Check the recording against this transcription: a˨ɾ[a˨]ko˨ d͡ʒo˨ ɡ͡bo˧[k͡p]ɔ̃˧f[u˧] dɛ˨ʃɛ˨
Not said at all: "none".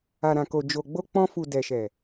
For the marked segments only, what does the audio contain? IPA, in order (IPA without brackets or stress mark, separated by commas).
ã˨, k͡p, u˨